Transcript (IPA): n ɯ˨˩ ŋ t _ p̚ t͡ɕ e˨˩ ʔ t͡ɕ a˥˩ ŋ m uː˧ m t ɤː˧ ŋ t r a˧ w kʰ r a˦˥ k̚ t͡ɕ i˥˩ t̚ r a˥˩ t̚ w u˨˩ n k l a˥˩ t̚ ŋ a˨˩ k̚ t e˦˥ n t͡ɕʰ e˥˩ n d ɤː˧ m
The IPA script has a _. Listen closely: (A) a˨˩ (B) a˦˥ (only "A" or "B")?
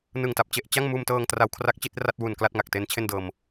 A